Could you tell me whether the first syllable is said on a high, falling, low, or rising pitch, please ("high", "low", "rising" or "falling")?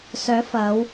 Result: rising